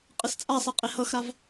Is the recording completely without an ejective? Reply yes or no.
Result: no